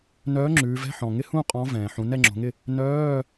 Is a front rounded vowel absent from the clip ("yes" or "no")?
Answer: no